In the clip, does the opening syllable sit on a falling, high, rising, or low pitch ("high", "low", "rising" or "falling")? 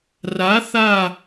rising